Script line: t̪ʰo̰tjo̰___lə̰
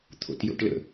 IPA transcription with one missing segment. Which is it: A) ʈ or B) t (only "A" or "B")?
A